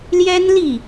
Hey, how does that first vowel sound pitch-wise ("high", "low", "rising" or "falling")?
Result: high